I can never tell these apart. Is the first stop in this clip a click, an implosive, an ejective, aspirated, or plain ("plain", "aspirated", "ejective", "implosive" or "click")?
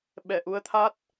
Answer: implosive